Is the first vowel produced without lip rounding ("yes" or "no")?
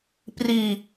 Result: yes